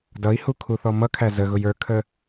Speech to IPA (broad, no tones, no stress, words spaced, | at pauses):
dʌi̯hu kʰuθɔmʌkʰæ zəɣʊj ə˞kʰə